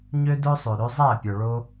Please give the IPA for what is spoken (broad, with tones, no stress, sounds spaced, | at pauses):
ɲ ø˦ d ɵ˦ sˤ ø˨ ɾ ø˧ zˤ æ˦˨ pʲ œ˨ ɭ o˦